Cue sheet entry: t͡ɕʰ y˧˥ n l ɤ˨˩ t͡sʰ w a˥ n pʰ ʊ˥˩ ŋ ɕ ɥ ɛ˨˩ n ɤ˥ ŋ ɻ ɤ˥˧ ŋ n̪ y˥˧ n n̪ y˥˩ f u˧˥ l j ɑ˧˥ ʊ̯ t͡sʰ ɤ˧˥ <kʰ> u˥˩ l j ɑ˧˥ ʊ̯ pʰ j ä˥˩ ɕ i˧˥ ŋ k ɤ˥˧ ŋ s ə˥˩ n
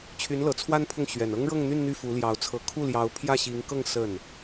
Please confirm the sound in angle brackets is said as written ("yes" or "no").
yes